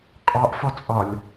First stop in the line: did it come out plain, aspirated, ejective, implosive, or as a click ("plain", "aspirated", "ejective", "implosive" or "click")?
ejective